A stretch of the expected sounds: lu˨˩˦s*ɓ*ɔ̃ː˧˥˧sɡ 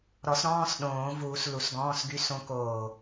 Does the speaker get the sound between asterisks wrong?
yes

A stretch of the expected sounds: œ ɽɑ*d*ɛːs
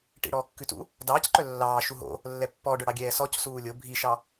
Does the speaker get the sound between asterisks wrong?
yes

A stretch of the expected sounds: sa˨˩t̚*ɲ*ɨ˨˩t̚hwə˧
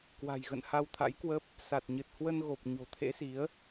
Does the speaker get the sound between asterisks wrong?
no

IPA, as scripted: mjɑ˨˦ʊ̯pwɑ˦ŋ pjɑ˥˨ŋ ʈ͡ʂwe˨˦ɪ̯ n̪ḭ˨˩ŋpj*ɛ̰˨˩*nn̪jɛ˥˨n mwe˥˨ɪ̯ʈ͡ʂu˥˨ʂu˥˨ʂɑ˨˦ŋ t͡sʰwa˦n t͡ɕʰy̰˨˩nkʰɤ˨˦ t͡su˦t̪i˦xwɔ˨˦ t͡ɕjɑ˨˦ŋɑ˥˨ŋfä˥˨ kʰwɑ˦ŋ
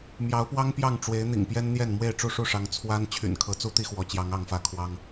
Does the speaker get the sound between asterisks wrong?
yes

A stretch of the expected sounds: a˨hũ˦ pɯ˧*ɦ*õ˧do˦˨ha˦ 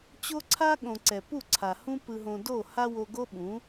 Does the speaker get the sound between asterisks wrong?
no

